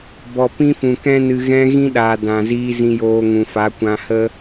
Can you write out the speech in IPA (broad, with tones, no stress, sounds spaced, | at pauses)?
b ɔ˨ p ĩ˦ f ũ˨ k ɛ̃˧ n ɨ˨ ɣ ɛ̃˧ ɣ ĩ˦ ɗ aː˨ d ã˨ z iː˧ z ĩ˧ j oː˧ ŋ ũ˨ f a˨˦ kʷ ã˧ h ə˦